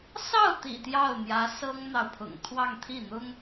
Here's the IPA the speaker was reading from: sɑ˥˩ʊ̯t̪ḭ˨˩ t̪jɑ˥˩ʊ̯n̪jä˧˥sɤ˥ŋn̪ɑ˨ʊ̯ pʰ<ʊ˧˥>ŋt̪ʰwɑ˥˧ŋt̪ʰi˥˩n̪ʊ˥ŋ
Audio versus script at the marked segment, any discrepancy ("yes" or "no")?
yes